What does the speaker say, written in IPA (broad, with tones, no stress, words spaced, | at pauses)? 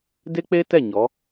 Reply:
de˦k͡pe˦tɛ˦˨ ɲɔ˨˦